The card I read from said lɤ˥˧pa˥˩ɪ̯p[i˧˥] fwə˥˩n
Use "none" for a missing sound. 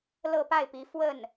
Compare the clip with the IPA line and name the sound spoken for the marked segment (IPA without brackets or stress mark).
i˧˥